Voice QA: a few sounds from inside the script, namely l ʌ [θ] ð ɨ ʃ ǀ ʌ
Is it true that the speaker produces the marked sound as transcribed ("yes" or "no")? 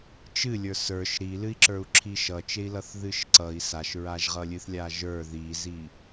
yes